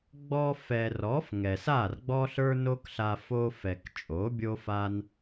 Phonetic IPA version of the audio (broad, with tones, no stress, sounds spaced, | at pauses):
ɡ͡b ɔ˧ f ɛ˨ r ɔ˨˦ f ŋ ɛ˨ s a˦˨ r ɡ͡b ɔ˦ ɬ ə˞˦ n o˦ k ɬ a˧ f o˧ f ɛ˨ k t͡ʃʼ o˨˦ bʲ o˦ f a˦ n